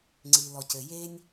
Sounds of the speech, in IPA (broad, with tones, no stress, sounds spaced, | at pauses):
ŋ͡ǀ i˩ l ɔ˩ c ɘ˩ j e˧ nʲ